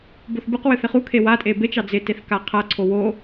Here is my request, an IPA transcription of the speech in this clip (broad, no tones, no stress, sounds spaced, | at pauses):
b o θ b ɨ q w ɨ θ ɪ χ u kʰ e w a tʼ e b e t͡ʃ ɑ d͡z ɪ t e θ k a qʰ a ǀʰ o w o